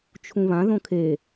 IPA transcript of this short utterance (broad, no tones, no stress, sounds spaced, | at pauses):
t͡ʃʰ ũ β ã ð õ kʰ e